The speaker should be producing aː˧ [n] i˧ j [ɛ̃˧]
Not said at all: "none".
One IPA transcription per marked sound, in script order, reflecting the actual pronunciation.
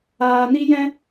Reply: n, ɛ̃˧

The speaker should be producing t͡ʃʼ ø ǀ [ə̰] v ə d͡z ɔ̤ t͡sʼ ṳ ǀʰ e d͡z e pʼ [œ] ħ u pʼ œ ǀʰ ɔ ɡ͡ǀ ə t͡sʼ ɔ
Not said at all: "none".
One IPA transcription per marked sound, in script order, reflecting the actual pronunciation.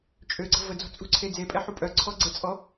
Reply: ə̤, ɛ

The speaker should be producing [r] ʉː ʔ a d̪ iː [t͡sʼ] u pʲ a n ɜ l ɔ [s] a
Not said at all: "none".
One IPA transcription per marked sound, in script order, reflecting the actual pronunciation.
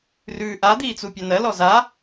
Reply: r, t͡s, z

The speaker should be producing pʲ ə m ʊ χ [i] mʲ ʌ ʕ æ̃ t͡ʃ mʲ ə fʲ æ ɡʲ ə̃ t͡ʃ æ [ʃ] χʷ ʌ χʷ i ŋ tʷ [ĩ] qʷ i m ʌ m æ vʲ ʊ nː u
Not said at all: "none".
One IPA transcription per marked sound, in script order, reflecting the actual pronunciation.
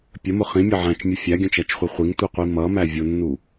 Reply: ĩ, t͡ʃ, i

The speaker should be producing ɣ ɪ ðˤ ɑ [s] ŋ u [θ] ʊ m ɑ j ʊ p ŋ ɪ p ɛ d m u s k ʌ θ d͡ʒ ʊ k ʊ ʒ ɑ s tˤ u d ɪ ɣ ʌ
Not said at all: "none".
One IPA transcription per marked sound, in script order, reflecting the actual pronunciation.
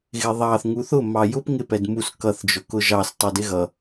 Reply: θ, θ

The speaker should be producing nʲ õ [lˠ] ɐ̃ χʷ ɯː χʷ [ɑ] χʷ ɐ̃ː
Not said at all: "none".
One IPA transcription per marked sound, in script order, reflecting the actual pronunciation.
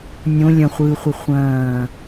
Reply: lʲ, ə

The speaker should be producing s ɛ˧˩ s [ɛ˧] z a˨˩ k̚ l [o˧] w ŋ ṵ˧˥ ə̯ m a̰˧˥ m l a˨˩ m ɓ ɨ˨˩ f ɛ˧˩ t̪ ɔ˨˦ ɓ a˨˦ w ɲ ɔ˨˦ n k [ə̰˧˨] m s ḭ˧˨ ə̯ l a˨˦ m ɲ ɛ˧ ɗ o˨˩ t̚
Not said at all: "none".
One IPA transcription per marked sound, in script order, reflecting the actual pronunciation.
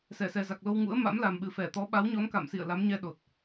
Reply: ɛ˨˩, o˧, a̰˧˨

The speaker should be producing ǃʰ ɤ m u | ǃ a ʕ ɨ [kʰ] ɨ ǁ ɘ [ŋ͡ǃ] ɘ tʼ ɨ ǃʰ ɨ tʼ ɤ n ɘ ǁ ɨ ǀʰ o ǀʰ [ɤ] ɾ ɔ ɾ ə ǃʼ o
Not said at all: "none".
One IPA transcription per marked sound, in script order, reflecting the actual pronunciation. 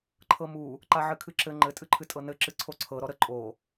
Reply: kʰ, ŋ͡ǃ, ɤ

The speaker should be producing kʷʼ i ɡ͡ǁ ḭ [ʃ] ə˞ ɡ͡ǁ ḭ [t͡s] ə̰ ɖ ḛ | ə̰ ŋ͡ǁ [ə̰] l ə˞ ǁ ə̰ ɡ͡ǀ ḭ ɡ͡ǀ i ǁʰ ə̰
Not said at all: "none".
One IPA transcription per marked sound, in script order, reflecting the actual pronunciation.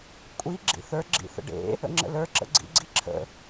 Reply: θ, θ, ə̰

